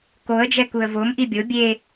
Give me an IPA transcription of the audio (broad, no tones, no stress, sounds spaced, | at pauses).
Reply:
k o ə̯ d͡ʒ ɛ k u ə̯ v o m ʔ i bʲ o bʲ e